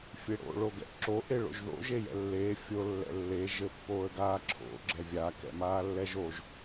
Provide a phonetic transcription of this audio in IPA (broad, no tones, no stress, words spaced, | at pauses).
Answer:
fʲeɽo̰ ɭoɡɛ̰ʔǁo ʔeɭo̰ʒðo̰ ʒejɛ̰lːeː fʲo lːɛ̰lːe ʒɘpːoːə̯ɡaːǁʰo̰ ɡ͡ǁɛvʲa kɛ̰maːlːɛʒoʒ